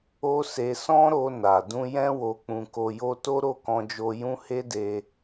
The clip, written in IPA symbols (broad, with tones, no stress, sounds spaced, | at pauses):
o˦ s e˧ s ɔ̃˦ ɾ o˧ n a˨ d ũ˧ j ɛ̃˦ w o˧ k͡p ũ˧ k o˧ j o˦ t o˦ ɾ o˦˨ k ɔ̃˧ d͡ʒ o˧ j ũ˦ h e˦ d e˧